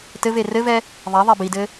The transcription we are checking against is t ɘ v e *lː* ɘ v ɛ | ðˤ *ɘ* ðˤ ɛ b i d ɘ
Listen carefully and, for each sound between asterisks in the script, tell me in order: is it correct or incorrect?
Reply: incorrect, incorrect

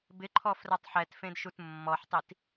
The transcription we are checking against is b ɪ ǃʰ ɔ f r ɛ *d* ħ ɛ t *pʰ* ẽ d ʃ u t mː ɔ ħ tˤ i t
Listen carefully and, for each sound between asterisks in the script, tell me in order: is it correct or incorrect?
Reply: incorrect, incorrect

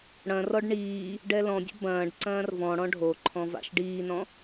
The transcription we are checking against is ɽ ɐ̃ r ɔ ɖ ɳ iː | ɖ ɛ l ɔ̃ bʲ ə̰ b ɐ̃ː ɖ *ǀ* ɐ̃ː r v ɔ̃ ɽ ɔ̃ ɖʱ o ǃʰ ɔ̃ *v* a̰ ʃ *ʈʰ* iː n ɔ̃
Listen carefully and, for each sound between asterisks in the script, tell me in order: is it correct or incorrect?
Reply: correct, correct, incorrect

